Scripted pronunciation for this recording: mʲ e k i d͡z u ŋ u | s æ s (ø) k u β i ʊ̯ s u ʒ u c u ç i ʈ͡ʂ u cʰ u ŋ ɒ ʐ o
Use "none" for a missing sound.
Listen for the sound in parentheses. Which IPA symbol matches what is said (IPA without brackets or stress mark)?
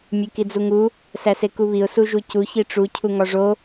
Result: e